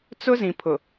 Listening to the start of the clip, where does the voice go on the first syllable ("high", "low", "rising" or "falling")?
high